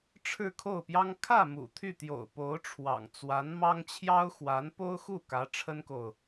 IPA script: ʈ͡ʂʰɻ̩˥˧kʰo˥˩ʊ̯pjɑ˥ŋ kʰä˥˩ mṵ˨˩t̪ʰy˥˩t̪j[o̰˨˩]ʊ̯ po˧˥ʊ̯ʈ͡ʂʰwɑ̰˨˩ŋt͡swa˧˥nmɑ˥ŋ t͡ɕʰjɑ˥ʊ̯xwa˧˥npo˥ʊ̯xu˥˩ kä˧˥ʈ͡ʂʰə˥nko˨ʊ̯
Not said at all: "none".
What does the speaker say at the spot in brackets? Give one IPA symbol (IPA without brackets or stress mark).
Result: o̰˨˩